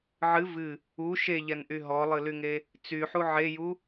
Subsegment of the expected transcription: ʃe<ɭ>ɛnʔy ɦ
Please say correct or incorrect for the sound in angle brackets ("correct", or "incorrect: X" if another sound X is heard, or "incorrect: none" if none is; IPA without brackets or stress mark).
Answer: incorrect: ʎ